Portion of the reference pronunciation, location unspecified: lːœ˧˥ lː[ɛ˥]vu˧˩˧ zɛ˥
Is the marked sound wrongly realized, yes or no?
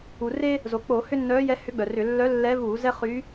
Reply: yes